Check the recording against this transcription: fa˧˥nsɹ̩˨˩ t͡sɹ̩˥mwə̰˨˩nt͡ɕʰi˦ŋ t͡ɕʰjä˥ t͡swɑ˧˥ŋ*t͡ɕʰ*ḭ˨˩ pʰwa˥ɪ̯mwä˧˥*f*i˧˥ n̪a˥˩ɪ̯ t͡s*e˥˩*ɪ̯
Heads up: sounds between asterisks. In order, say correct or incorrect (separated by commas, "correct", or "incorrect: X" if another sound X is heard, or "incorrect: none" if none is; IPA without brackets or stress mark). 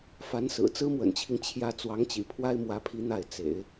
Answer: incorrect: t͡ɕ, incorrect: pʰ, incorrect: ḛ˨˩˦